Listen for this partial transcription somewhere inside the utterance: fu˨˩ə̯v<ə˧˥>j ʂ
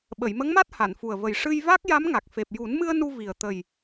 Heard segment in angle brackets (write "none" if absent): ə˨˩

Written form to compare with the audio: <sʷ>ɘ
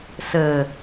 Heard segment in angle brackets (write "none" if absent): s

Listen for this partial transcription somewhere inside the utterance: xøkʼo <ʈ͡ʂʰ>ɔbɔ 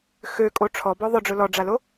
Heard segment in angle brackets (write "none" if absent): ʈ͡ʂʰ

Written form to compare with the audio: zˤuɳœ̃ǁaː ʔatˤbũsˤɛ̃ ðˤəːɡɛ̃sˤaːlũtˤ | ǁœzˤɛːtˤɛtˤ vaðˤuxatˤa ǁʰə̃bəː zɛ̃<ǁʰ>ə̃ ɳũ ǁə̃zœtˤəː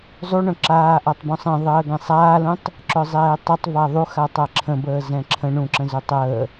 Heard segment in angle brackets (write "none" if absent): ǁʰ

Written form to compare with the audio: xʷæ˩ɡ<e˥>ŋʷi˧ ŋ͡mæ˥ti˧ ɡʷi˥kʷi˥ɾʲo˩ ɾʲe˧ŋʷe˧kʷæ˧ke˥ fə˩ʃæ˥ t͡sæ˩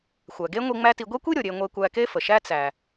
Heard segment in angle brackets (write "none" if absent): e˥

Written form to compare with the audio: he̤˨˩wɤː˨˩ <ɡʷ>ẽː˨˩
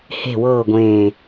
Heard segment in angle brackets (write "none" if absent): ɡʷ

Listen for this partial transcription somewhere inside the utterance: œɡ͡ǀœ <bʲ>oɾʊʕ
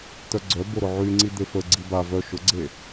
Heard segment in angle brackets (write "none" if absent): b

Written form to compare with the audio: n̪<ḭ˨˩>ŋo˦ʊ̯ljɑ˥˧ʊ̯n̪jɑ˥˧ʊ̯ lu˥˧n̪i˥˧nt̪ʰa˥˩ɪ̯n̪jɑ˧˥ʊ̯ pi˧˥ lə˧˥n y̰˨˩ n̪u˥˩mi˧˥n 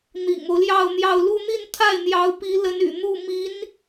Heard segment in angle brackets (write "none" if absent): ḭ˨˩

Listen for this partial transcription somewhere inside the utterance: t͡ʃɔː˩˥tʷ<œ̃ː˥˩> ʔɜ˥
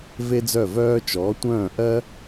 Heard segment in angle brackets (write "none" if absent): œ̃ː˥˩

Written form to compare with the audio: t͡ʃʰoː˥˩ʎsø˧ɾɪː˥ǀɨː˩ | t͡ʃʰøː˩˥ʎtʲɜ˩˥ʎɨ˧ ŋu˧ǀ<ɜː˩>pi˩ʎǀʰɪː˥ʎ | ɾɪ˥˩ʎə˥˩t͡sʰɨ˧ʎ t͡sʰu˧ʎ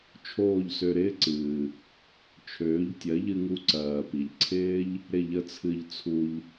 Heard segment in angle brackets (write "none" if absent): ɜː˩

